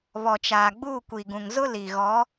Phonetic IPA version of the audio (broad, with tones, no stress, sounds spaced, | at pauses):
β ɔ˨ t͡ʃ aː˨ ɡ͡b uː˦˨ kʷ i˨ ɡ ũ˨ ŋ z ʊ˦ l i˨ ɣ ɔ˨˦